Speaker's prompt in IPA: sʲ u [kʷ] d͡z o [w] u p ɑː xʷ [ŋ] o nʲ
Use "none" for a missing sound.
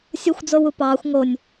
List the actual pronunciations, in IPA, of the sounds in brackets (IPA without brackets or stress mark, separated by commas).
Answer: xʷ, w, ŋ